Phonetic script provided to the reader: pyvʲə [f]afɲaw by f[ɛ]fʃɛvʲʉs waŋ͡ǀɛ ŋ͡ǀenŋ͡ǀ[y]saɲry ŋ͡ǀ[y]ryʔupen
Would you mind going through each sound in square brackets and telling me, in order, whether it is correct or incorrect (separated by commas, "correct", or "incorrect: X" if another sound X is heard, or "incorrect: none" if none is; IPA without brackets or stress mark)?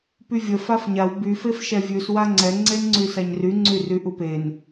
correct, incorrect: e, correct, correct